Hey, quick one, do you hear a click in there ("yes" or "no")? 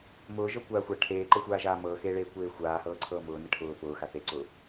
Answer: yes